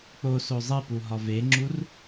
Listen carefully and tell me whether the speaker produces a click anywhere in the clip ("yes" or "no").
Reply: yes